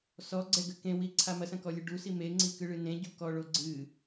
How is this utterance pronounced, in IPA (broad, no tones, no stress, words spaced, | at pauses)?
sɔɡ͡ǀɛɡɘ kẽwiǀʰa mɐsɐ̃kɔlʲɨ ɖusi meŋ͡ǀikɨɭɨ nẽɟukɔɭo ɡ͡ǀɨ